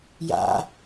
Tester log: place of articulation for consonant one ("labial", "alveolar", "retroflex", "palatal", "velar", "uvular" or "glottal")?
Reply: palatal